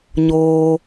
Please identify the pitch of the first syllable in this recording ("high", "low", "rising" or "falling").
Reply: low